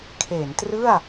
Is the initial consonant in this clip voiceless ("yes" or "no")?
yes